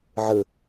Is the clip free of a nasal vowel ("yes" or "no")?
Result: yes